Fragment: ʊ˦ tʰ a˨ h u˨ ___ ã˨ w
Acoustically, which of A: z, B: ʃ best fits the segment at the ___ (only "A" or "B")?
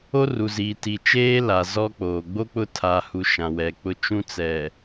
B